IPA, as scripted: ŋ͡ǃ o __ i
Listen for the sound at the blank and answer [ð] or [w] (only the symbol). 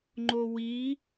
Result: w